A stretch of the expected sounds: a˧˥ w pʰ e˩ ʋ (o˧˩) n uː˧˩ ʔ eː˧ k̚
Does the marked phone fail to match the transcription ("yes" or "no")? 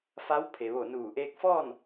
no